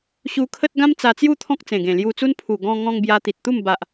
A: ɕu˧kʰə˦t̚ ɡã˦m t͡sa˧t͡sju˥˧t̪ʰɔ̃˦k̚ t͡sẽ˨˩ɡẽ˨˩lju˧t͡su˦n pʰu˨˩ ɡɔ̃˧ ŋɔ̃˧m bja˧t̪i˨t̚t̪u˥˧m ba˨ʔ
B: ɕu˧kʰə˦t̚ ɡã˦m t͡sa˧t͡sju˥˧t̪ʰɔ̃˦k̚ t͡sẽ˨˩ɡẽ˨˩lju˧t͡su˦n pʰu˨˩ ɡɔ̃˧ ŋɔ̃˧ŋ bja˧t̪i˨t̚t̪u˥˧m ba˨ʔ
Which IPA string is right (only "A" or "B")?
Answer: B